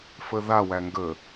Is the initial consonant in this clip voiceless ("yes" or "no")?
yes